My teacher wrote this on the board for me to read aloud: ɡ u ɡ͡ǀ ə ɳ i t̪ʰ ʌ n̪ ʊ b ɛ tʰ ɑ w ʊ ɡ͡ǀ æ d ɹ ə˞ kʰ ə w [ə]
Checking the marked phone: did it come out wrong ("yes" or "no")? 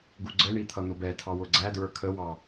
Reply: yes